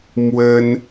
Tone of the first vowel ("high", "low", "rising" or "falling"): high